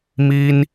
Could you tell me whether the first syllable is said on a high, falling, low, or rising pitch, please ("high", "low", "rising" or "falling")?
high